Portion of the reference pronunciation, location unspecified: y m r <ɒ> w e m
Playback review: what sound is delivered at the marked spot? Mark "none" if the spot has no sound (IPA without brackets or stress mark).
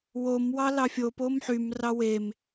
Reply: ɑ